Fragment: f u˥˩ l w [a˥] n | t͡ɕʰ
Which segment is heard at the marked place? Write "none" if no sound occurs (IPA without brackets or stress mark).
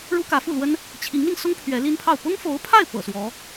ə˥